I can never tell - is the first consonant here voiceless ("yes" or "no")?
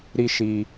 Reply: no